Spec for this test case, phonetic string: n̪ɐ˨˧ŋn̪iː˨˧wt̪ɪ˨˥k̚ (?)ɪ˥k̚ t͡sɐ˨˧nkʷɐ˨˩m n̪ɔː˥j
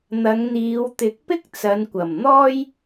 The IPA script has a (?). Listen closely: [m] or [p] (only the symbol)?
p